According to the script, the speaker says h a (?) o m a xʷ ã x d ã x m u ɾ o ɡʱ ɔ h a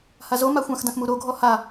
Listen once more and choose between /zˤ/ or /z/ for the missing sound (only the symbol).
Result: z